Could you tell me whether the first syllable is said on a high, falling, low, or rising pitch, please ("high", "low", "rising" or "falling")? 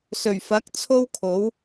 low